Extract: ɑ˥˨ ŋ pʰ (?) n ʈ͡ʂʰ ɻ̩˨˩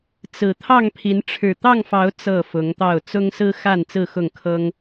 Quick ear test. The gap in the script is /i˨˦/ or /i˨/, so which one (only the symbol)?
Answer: i˨˦